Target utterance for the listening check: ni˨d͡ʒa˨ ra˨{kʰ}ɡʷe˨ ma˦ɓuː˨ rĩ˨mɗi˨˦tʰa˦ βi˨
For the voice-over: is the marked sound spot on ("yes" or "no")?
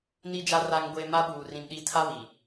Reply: no